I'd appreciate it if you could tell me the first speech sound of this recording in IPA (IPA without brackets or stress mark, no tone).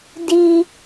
d